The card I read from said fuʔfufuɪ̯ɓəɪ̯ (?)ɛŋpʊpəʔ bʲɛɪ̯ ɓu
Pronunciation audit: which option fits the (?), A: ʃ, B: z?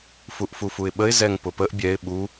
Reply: B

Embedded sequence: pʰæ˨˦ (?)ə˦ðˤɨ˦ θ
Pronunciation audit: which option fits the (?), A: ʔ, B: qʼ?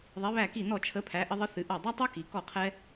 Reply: A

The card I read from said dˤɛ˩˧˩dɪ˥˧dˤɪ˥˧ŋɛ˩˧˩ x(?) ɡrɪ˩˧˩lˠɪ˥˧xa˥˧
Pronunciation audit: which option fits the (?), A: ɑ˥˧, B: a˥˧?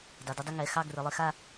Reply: A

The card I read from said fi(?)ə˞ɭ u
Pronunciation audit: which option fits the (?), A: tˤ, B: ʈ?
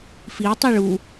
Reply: A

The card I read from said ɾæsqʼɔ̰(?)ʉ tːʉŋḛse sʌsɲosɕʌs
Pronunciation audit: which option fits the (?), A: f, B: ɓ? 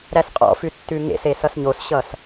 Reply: A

